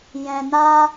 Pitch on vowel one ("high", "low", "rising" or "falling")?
low